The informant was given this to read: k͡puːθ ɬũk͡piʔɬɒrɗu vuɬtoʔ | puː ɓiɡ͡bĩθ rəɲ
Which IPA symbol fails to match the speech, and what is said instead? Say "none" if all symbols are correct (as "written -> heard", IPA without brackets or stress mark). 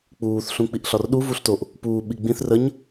none